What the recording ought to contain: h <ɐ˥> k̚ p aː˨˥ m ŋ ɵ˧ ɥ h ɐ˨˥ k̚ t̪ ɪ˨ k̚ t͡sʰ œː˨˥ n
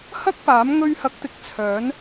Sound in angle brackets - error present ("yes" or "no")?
no